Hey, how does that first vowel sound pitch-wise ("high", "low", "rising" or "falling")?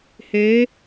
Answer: rising